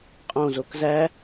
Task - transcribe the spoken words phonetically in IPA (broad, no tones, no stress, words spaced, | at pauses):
qʼõzok zæ